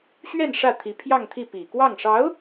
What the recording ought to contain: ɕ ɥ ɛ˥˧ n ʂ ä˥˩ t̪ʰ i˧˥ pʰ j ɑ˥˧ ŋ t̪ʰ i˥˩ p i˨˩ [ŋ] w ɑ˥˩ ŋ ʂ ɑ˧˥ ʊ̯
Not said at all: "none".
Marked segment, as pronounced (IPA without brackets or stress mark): k